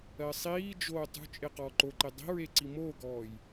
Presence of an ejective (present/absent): present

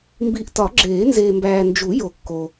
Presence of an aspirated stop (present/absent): absent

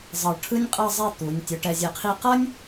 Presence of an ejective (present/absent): present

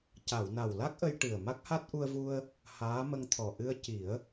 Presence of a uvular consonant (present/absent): absent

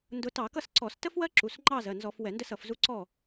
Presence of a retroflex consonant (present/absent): absent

